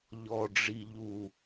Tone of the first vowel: high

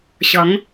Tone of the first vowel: rising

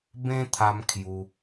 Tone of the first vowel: high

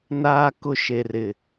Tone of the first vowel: high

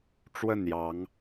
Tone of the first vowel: falling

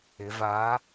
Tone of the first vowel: rising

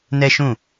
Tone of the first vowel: high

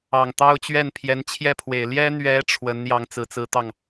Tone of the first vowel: low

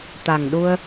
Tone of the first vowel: low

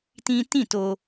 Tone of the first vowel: high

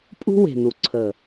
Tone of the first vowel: high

